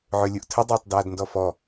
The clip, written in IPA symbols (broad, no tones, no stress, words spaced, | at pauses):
ʕølʲuʔtʰədˤaːtˤ daːdndɔfɔ